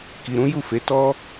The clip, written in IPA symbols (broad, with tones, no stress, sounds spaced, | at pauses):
k i˨ ɾ ũ˨˦ j u˦˨ f e˨˦ t ɔ˦